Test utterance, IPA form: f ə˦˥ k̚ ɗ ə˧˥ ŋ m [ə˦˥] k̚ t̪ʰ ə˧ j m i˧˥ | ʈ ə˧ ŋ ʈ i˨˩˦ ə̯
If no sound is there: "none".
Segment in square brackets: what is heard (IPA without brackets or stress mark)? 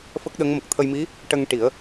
ə˨˩